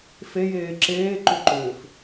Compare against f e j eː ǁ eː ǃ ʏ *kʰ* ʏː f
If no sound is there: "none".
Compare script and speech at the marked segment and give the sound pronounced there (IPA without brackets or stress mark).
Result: ǃ